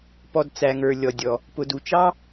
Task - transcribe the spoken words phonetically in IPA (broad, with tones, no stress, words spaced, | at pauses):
pɔ˩d t͡sæ˩ŋə˞˩ lʲɔ˩dʲɔ˩ | pʊ˩du˩t͡ʃɑ˥